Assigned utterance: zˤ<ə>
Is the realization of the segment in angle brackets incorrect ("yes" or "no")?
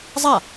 yes